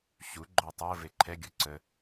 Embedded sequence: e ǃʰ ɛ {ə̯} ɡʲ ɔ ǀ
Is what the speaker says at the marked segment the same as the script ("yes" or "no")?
no